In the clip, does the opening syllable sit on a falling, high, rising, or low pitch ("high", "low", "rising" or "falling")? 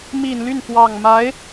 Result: low